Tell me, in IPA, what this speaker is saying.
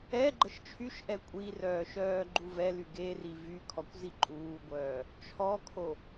ɛ ɡ͡ǃ ə ʃ t͡ʃʰ y ʃ ʔ ɛ kʷʼ i r œː ʃ œː ɡ͡ǃ u v ɛ l y ɡ e r i v y kʰ ɔ kʷ z i ǃʼ uː ɡʷ œː | t͡ʃʰ ɔ kʰ o

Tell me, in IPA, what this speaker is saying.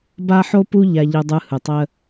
b a˧ ħ o˧ p u˧ ʎ a˧ ʎ ɯ˧ dˤ ɯ˧ h ɯ˩ tˤ ə˧

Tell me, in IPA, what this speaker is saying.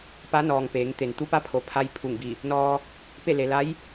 p a˧˥ n ɔː˩ ŋ p eː˩˧ ŋ t̪ e˩ n t̪ u˧˥ p a˧˥ pʰ o˩ pʰ a˧ j pʰ u˧˩ ŋ b i˧˩ | n ɔː˧ | p e˥˨ l e˩ l a˧˥ j

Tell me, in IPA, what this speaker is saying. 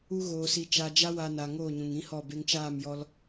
u˦ ɣ oː˧ s i˧ t͡ʃ a˧ d͡ʒ a˦ w a˧ n a˨ ŋ oː˦˨ ɲ ũ˨ ŋ ĩ˦ h ɔ˦˨ b e˧ ŋ t͡ʃ aː˦˨ m j ɔ˧ l

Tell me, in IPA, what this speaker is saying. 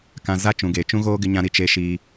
k ã˨ z a˦ t͡ʃ ũ˨ ɡ eː˨ t͡ʃ ũ˦ ɣ oː˦ ɡ ɪ˦ ɲ ã˦ ɾ i˨ t͡ʃ e˦ ʃ iː˦

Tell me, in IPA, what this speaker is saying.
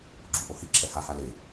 ɡ͡ǁ u ʔ o h i ǁʰ ɛ h a h a l e

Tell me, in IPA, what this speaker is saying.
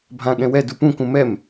bʱ ã ɠ ɛ̃ w ɛ d u p ũ k ũ m ɛ m

